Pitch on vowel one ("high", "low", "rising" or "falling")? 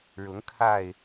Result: rising